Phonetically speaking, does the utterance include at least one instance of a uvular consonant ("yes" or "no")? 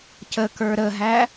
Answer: no